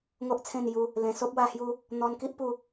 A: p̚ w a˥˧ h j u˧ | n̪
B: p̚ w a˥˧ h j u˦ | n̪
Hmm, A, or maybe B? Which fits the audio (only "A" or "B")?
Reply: B